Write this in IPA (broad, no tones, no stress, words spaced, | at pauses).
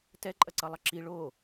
tɛǃʼɐǀʌ lˠʌǁi ɭo